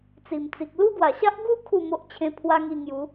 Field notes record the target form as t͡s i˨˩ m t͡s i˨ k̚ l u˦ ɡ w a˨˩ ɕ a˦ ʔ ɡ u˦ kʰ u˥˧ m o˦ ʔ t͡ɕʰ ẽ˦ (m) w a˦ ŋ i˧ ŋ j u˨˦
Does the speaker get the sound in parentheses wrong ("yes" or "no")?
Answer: yes